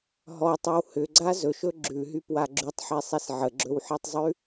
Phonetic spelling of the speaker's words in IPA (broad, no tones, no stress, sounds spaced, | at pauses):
ɦ ɔ tˤ ʉ w h ʏ ɡ͡ǀ a z ɵ ʃ ɵ ɡ͡ǁ ʉ ɦ y p w a ɡ͡ǁ y tˤ ħ e sˤ i s ʕ ə ɡ͡ǁ ɵ w ħ i tˤ zˤ ʉ